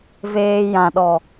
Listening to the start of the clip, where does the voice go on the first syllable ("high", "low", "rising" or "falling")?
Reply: high